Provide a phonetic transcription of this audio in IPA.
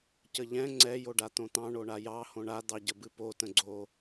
cəʎɛ̃ ŋ͡ǀɛ joɖat̪õt̪ɑ̃ ɳoɳajɑ hõɳa d̪ɑɟəbɨpo tə̃ɡ͡ǀo

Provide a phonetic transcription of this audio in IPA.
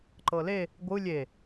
ǃɤle | ɡʷɯ lʲe

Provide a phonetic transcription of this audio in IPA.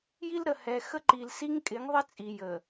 ji˦lɾə˨hɛ˨ xə˦ǃi˨l si˦ŋkʼɪ˨˦ŋðˤɪ˦ t͡sʼi˨jə˨

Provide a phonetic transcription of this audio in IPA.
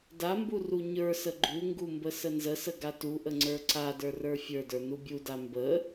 dambu ruɲə˞sə ɡ͡ǃuŋɡu mbəsənzəsə ɡatuʔə ŋ͡ǀə˞ǀadə˞ rə˞fʲə˞də˞ nubʲuda mbə

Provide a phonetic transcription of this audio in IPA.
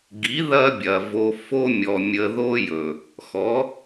ɡi˨˦ ðɐ˦ bʲɐ˨vo˧ fo˦mʲɔ˨ mʲə˧ðo˦jɵ˨ | xɔ˨˦

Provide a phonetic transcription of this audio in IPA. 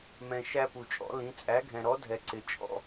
mɛ̃˧ ʃæ˥pu˧t͡ʃʼɔ̰˧˥lĩ˧˥ t͡sʼæ˧˥ɡʱɛ̃˧ɾɔ˧˥ dʱɛ˧ǀɪ˧ t͡ʃʼɔ̰˧

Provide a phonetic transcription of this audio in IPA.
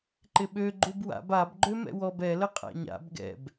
ǃɪɓø ɡ͡ǃubwa̰b ab ɡ͡ǃømɛ̰wɔb ɛ ləqʼa̰ɲa̰b ɡɛ̰b

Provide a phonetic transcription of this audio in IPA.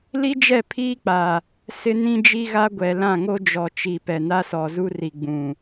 li˦d͡ʒɛ˦˨pʰiː˦k͡pa˨ | sɪ˦ nĩ˦d͡ʒi˦ɣa˦ɡʷɛ˨ lã˦˨ŋo˦d͡ʒɔ˨ t͡ʃi˨pɛ˨ na˦sɔ˨zu˦ri˨ ɡ͡bũ˨

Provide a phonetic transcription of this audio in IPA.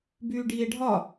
byːɖiːe̯ɖʱɒ

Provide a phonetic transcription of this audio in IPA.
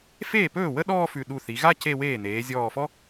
feː˥˩pɵː˥˩ wə˥ɗɔː˥˧ fʉ˧˩ ɗu˧˩θi˩˧ɣa˥˧ ce˥˧weː˥˩ n̪eː˩˧zʲɔː˧˩fɔ˥

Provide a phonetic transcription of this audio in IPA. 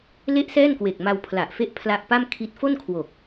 le˥˩ʔsɛː˥˩n kwe˨˩k̚ma˧w pʰla˨˩ʔfe˦˥ʔ pʰla˦˥ʔpa˥˩mkʰi˦˥t̚ fo˥˩nkʰwo˨˩k̚

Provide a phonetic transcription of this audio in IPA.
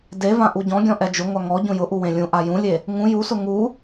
devã ʔuɟɔ̃ɡʲɔ̃ ʔɛd͡ʒʊŋʷa ŋɔ ɟũjʊʔu wẽlʲũʔa jũlʲe | ŋũ jusʊ ŋu

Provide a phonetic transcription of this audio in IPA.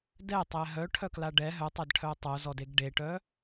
dɛtˤɛ ɦœʈʰœkla ɖɛ ɦœtˤɛdʈʰœ tˤozɔdeɡ ɖeʈœ

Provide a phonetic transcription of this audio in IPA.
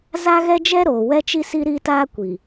za˦ɣɛ˦ d͡ʒɛ˦ɾoː˨wɛ˦t͡ʃi˦ si˦ɾi˦taː˦ kʷi˨

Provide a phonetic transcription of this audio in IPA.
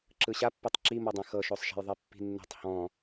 ǁɯɕapːetˤ ǁimɔdˤɛ̃ xɤʃosˤʃɛ̤jðˤe pːi̤nːɛ̤tˤ hɔ̃

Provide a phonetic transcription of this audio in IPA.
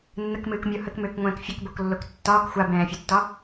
nːəkmɨːkmʲo həkmʏːkŋʷɛ̃ːk fʲəkboklːok tːɒːk xʷabɛ̃ːfʲutːɒ

